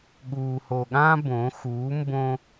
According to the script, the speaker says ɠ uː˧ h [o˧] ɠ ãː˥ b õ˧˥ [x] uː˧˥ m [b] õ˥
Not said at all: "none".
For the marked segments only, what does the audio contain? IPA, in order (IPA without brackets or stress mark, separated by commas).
o˧, x, b